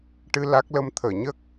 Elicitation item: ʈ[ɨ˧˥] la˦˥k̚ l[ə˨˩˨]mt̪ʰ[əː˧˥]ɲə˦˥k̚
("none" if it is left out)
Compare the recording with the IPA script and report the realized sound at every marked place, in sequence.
ɨ˧, ə˧, əː˨˩˨

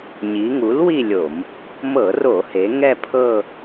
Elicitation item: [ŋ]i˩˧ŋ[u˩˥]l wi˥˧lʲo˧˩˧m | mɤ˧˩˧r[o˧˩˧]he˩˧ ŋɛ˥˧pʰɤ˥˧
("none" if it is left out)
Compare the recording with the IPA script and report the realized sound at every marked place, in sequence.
ɲ, u˩˥, o˧˩˧

